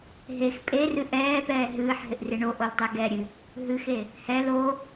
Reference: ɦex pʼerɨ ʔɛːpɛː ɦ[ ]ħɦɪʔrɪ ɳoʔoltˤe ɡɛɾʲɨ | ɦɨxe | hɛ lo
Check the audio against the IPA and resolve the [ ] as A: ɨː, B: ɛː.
A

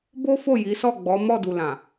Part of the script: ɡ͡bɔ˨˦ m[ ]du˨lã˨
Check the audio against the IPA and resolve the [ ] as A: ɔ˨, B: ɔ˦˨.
B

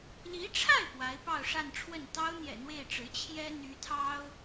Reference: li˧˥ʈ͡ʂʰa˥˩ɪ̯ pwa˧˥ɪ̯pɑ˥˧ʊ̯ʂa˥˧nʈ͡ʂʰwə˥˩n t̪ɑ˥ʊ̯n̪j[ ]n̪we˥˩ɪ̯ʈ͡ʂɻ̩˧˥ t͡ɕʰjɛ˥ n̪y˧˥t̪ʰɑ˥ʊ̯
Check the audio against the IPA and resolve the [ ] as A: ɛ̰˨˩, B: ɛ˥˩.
A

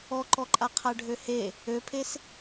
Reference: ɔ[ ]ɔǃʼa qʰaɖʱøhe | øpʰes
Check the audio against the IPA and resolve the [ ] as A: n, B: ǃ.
B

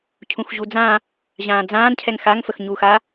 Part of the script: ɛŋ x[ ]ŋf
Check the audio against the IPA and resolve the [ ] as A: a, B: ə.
A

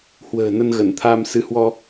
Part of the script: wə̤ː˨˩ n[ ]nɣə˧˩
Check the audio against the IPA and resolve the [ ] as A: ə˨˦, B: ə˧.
B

